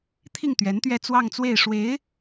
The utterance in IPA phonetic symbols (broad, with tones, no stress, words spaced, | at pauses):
t̪ʰi˥˩ŋt̪ɥɛ˧˥nt̪ɥɛ˥˧ t͡swɑ˥˧ŋt͡swe˥˩ɪ̯ ʂwe˧˥ɪ̯